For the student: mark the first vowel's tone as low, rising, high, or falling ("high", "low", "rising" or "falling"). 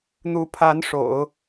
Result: rising